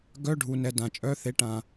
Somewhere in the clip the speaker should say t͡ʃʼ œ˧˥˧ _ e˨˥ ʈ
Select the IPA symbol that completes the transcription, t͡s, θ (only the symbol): θ